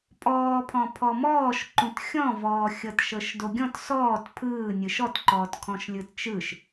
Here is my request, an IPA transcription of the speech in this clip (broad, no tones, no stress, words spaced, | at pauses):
pʼɔːpʰɔ̃ pʰɔmɔːʃǃũt xʲɔ̃vɔːxʲɤt ʃɤʃdoɡʲɔ̃t sɔːt pʰɯːnʲɯʃ ɔtǃɔːt kʰɔ̃ʃlʲɯtt͡ʃɯʃ